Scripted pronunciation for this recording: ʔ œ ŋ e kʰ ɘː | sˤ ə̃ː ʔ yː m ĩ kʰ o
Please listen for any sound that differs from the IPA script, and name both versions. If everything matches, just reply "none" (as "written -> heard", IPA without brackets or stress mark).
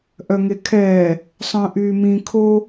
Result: ɘː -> ɛː